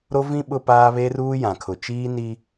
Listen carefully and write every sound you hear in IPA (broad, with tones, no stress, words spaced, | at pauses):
ɾo˦vĩ˦ ɓʊ˦paː˦ βe˦ruː˦jã˨kʰʊ˨ t͡ʃiː˦ ni˦